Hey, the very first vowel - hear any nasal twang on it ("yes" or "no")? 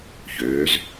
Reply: no